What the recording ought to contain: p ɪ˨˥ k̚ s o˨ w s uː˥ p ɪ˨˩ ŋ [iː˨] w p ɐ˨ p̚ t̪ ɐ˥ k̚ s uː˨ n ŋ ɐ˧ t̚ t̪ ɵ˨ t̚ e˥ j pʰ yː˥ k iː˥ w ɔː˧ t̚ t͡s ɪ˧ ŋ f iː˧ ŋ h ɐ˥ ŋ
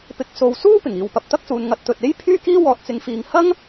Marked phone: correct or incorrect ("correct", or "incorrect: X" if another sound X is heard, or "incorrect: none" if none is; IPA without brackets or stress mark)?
correct